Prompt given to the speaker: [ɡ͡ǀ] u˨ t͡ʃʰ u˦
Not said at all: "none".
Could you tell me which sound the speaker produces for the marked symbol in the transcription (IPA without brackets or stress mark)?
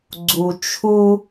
ɡ͡ǀ